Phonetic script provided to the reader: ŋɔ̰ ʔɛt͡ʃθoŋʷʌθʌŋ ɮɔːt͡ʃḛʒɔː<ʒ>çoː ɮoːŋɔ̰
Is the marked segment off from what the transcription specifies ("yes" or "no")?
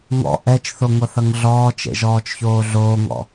yes